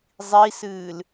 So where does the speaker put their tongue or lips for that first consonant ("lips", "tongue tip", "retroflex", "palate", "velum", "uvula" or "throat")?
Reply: tongue tip